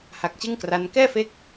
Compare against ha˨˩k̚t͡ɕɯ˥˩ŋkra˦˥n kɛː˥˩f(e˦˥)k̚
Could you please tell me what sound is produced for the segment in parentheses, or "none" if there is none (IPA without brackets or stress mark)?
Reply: e˦˥